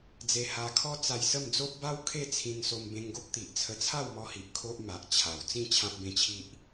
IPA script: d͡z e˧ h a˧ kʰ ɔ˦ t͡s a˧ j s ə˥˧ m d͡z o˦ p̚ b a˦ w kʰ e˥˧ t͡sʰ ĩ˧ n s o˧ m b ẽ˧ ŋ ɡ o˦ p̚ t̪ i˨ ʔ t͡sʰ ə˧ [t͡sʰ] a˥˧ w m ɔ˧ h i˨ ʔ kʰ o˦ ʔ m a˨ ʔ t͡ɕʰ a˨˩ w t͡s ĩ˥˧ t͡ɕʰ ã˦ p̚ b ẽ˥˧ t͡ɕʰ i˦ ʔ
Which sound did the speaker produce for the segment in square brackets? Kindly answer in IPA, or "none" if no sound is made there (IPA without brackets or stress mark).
t͡sʰ